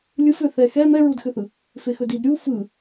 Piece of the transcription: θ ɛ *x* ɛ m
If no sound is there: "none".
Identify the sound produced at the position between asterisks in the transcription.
x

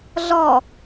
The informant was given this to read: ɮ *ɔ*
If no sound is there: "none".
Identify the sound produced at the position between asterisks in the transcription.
ɔ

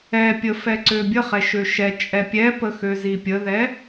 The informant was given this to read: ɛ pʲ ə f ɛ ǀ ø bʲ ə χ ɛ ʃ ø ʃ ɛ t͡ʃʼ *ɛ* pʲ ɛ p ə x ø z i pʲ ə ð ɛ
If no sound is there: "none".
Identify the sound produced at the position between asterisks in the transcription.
ɛ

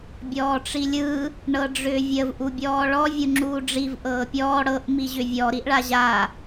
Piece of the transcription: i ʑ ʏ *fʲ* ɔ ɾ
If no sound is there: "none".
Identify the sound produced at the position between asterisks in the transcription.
vʲ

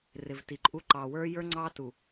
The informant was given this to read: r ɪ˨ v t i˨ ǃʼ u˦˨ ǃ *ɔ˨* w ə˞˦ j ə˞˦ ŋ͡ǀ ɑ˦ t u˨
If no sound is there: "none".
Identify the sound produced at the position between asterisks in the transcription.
ɑ˨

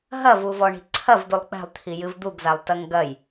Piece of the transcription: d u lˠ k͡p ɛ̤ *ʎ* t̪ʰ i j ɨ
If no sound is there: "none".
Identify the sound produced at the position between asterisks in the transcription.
lˠ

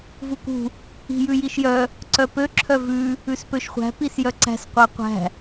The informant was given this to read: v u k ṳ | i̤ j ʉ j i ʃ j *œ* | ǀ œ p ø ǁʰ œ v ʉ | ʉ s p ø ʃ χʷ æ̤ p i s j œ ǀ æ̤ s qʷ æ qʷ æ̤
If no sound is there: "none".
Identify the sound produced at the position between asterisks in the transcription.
œ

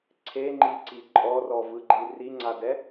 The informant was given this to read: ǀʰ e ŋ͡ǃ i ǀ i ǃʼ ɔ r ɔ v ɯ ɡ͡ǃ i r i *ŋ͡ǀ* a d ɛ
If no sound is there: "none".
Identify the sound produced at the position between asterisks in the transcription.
ŋ͡ǀ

